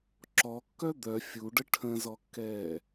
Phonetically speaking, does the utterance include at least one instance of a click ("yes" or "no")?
yes